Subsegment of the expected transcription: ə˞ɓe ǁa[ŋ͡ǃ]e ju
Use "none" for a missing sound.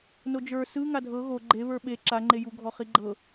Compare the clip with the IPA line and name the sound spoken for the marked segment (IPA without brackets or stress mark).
ŋ͡ǃ